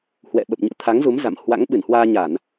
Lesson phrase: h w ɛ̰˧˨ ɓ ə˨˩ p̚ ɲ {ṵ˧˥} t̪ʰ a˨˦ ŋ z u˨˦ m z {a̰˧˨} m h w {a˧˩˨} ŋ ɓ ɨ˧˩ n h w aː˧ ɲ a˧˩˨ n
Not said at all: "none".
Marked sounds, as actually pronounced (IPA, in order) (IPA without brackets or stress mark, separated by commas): ṵ˧˥, a̰˧˨, a̰˧˥